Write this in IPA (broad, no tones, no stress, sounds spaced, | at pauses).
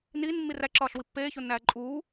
n iː n mː i r æ ǁ ɒː ɬ w i pː eː ç o nː æː ǃʼ uː